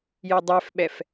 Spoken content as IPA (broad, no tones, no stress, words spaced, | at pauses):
jedˤɛfɓɛf